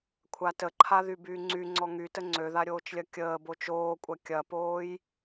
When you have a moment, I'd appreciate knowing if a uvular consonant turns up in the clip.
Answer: no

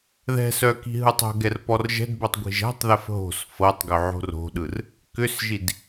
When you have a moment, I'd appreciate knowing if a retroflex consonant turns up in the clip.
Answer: no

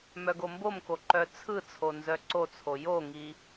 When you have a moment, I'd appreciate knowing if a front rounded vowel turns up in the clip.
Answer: yes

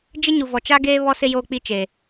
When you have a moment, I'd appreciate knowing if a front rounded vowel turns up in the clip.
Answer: no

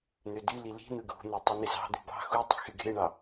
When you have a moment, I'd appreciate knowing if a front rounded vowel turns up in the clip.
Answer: yes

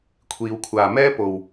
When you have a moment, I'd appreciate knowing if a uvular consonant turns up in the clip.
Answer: no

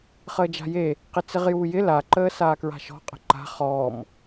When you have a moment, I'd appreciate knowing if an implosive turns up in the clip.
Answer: no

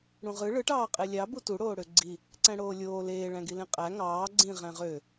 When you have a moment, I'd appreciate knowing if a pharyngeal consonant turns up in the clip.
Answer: no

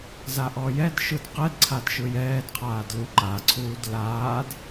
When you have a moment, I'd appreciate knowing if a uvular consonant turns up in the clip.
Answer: yes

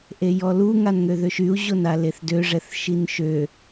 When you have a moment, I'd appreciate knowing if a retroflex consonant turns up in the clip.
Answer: yes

